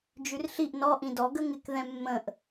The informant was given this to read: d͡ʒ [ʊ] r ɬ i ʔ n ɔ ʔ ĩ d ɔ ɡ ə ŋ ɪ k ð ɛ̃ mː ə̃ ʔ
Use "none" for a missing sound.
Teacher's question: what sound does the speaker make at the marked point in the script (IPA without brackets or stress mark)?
ʉ